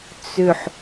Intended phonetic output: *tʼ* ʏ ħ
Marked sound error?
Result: yes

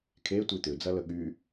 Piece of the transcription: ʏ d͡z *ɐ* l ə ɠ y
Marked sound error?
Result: no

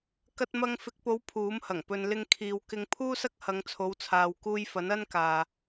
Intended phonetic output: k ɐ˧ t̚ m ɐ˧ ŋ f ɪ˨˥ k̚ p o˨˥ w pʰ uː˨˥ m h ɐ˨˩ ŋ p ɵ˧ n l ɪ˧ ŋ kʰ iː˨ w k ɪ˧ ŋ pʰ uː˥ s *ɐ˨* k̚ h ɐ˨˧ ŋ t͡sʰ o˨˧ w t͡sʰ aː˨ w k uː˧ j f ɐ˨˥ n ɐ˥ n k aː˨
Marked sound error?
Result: yes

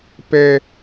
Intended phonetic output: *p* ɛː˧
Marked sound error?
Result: no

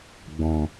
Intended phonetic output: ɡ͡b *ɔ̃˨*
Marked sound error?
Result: no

